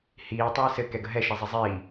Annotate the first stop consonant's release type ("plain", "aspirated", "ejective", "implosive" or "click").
plain